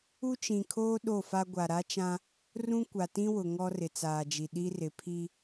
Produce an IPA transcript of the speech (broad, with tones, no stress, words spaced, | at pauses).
u˦t͡ʃĩ˨kʰoː˦ ɗo˦˨fa˦ ɡʷa˨ɾa˦t͡ʃã˦ | rũ˦kʷa˨tĩ˦wʊ˨ ŋɔ˦rɪ˨t͡saː˨d͡ʒi˨ ɗi˦rɪ˨ pʰi˦